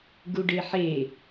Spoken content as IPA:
ɡuɖeħe

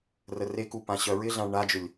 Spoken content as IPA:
rəreku pãɕœɹɪɮãɭ ɳad͡ʒʏlʲ

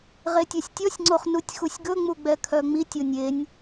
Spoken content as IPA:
ʁetʲɛsʲtʲɔsʲŋ͡ǀoχ nutʲxusʲɡɵŋ͡mu ɡ͡bɛkʰœŋ͡mitʲonʲ enʲ

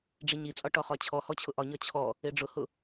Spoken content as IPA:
ɖ͡ʐiɲit͡sʼɒ ʈɔχɒt͡ɕʰɔhɔ t͡ɕʰʊʔɒɲɒ t͡ɕʰɔ | eɖ͡ʐʊhʊ

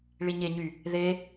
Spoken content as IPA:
ɭiɲeɲy | ðe

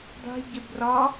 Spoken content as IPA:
dˤi̤ ɟebrɒ

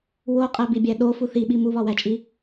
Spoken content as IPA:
woqʼæbibʲæ ɗofu θiɓi muβɒwæt͡ʃʼi

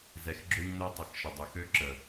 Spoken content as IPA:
zɛ˨xɡ͡ǁø˦ɲnø˦ tˤə˨xʃə˨dˤø˨x ø˦ǁə˨

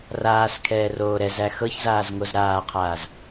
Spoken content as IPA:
raːskʰɛː roːɾɛzæ xɤçzaːz ŋozɾaːqʰaːz

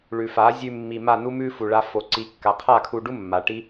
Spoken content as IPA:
ɭʉ˨fa˨˦ zʲʉ˧mːi˨ma˦˨nu˦ mʉ˦ fu˨ɭa˧fo˨ ǀi˨˦ kːa˨qʰa˦˨kʰu˧ɖu˦ mːa˨ ʈi˦

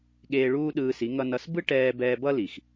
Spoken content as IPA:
ɠeː˧ɭuː˦ ɗɯː˧si˨˦ ŋʌ˧nʌ˧s bɯ˦ʈɛː˧ bɛː˧bʌ˦li˨x

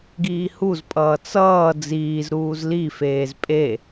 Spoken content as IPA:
ɡiːhuzpʼʌː t͡sʌː d͡ziːzɾuːz lifeːz pʼe

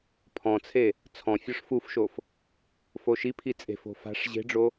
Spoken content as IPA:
pʰɔ̃t͡sʰe | t͡sʰɔ̃ fʲɔʂfufʃof | foʃipʰi t͡sʼe̤fo̤ fa̤ʂ ʑe̤ɖ͡ʐo

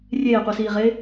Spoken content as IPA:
rʲeːqʷisiːʁe

